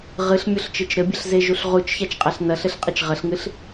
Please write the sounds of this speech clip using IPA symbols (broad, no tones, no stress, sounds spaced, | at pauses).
ʁ ɨ ɬ mʲ o ɬ t͡ʃ ɨ t͡ʃ ɾ ɘ bʲ ɐ ɬ z e ʒ u ɬ ʁ u t͡ʃ ç a t͡ʃ qʼ a ɬ n ɐ ɬ ɘ ɬ qʼ ɘ t͡ʃ ʁ ɐ ɬ ŋ ɨ ɬ